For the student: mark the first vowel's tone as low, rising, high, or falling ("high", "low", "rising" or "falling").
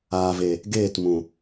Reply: low